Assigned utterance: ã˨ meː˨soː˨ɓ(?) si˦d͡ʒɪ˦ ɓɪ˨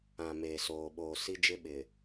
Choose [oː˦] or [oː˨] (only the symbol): oː˨